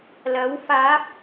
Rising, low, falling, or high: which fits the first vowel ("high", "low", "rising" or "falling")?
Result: rising